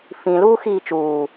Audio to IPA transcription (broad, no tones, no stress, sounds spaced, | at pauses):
f ĩ l uː x iː t͡ʃ uː